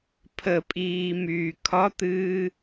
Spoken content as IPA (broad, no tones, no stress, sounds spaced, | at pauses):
pʰ ə pʼ iː m yː kʰ ɒ t̪ ɨː